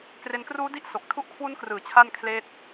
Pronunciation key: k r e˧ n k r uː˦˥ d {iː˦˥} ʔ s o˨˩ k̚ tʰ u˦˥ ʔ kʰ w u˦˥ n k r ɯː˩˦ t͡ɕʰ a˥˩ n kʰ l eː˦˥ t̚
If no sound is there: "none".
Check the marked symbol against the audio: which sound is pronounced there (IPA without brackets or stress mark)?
i˦˥